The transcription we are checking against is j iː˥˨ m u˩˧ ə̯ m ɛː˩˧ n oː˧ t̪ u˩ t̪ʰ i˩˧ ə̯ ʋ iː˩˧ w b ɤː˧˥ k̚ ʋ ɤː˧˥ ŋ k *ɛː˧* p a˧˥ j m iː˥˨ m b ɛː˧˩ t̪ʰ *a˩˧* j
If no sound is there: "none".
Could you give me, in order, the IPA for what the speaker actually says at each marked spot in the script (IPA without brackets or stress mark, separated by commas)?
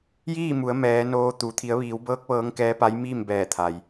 ɛː˧˥, a˩